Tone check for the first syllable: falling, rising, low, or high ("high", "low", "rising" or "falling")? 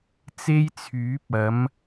high